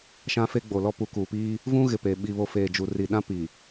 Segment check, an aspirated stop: absent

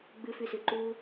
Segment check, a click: present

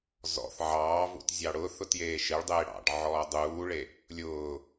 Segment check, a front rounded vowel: absent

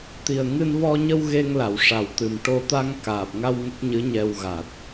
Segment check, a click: absent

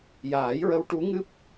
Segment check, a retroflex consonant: present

